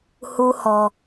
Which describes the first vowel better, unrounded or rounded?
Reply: rounded